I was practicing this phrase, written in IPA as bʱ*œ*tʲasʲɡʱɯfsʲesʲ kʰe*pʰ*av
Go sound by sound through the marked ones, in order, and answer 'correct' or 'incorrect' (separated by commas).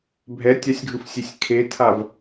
incorrect, incorrect